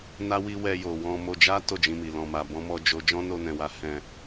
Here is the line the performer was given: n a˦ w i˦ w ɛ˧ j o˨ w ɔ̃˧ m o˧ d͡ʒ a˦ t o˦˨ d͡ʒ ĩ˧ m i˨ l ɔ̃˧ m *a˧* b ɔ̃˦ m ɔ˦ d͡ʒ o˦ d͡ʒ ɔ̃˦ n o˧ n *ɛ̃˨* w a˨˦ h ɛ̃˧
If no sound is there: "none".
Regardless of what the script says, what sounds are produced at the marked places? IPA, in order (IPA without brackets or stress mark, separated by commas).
a˧, ɛ̃˨